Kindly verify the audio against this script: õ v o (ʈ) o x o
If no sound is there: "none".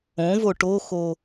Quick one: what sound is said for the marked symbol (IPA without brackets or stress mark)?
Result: ʈ